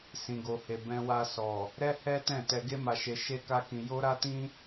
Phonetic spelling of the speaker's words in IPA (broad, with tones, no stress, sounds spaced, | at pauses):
s ĩ˨ ɡ o˨ h e˨ b ɛ̃˧ w a˧ s ɔ˨ | ɾ ɛ˦ h ɛ˦ t ɛ̃˦˨ t ɛ˧ ɡ e˦ m a˧ ʃ e˧ ʃ e˦ k a˦ k ĩ˧ j o˦ ɾ a˦ t ĩ˦